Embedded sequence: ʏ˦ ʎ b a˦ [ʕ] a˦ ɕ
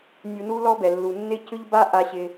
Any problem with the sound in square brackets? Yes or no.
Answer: yes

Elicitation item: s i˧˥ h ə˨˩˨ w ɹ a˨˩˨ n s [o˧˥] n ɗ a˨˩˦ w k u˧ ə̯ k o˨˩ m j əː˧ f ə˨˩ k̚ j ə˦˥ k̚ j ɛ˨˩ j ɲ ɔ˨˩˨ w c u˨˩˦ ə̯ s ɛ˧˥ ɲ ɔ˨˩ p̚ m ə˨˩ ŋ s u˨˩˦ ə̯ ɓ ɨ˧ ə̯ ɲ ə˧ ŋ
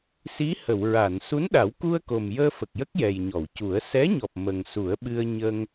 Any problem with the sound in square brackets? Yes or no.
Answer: yes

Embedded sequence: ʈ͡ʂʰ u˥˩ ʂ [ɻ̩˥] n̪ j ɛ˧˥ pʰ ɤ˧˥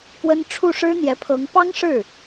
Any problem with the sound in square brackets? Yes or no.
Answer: no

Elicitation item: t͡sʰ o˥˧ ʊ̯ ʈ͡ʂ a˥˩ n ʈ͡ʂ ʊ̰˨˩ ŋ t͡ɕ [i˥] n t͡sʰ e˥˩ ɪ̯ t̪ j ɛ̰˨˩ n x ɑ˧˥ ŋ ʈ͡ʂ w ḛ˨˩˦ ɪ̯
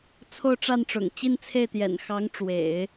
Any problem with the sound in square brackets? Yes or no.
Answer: yes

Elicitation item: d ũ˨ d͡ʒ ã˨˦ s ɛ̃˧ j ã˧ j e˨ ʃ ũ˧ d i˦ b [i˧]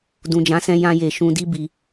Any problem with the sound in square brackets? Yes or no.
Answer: no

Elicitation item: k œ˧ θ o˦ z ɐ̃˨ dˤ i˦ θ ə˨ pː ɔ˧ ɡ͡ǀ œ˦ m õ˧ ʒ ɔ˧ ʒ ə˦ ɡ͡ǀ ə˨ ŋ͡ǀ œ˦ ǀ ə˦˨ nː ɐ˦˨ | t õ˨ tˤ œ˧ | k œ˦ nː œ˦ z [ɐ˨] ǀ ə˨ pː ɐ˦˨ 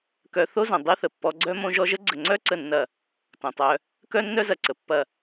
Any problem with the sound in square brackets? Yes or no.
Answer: no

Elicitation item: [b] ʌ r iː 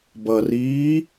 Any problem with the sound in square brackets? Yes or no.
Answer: no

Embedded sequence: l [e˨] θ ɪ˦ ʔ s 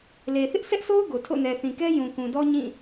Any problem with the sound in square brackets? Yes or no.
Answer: no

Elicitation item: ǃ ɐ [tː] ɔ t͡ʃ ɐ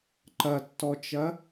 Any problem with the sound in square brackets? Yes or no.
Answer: no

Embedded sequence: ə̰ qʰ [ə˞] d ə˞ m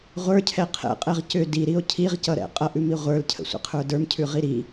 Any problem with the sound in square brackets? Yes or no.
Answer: no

